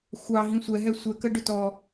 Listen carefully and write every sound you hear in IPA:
xʷɑ ɦĩsʷɛ ɦɛsʷɛ kəɖʊtɔ

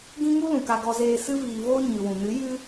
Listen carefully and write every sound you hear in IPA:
ɡĩ˦ŋu˦lũ˨ ka˧ɡɔ˧zeː˧ sɨ˦viː˧ voː˦ɲɨ˨ wũ˨ nɨ˨˦jɨ˦

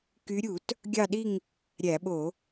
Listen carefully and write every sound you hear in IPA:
ky˨˦ɾʲu˧˩˧t | ɡʲɑ˦˨ɗi˦˨ŋ | ɾʲæ˧˩˧ɓo˧˩˧

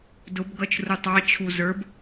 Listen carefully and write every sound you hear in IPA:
dʊbɡʌt͡ʃ rutˤɑt͡ɕʰu zə˞b

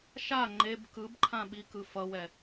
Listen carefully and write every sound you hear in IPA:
ʃa ŋ͡ǃeb kɯbǃʰã ɓikɯ fʌwɛ

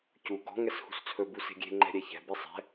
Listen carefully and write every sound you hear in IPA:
cu ɡɔ̤ ŋɛshṳst͡sʰɵ buse̤ɡʲe̤ ŋ͡ǃɛ̤ɾʲɛçɛ̤ besˤɛ̤

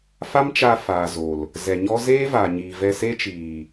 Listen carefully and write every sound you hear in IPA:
fa˦mt͡ʃa˧ faː˨zo˨l | zɛ˨ɲɔ˦ zeː˦vaː˨ɲiː˨vɛ˧ se˦t͡ʃiː˨

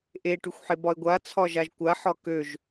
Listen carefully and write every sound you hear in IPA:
ʔe ʈyxʷħebɒe̯ɡʷa t͡sʰɒʒaʒkʷa ħɒkøʒ

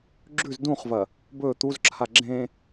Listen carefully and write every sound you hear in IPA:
ɡ͡ǁʉz dũχvɐ | bɵ t̪uzǁʰa ɡ͡ǁẽ

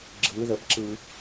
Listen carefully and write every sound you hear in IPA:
ɡ͡ǁɯ ðəbǁɯ

